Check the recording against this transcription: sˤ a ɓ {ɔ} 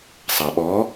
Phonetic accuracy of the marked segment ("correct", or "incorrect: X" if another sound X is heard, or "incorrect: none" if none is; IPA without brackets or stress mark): correct